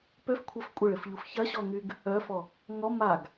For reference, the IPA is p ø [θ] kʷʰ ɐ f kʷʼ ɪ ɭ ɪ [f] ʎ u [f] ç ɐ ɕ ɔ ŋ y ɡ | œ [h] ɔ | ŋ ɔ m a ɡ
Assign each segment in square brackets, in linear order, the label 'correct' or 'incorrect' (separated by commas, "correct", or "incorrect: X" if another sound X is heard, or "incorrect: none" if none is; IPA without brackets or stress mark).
incorrect: f, correct, correct, incorrect: f